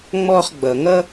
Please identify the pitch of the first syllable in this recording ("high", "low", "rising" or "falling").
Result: high